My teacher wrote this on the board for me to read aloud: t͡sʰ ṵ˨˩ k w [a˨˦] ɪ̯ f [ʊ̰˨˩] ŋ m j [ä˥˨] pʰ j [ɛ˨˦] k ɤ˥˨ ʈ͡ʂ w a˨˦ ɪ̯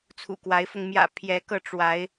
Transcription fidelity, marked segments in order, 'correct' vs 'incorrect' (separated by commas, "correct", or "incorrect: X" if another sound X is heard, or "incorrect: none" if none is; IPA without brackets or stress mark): correct, incorrect: ʊ˧, incorrect: ä̰˨˩, correct